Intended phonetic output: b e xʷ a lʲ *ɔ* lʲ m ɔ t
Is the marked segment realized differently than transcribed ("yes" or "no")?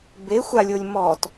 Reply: yes